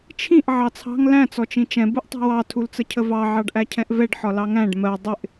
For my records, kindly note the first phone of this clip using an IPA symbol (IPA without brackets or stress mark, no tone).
t͡ʃʰ